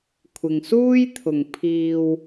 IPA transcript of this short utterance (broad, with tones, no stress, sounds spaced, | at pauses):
kʷʰ ɪ˨ ŋ s uː˥ j t̪ʰ ʊ˨ ŋ pʰ iː˧ w